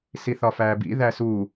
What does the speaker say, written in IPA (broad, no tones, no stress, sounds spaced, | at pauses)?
s i θ ɒ f æː b ḭ ð æ s u